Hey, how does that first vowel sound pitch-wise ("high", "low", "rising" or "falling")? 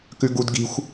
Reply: high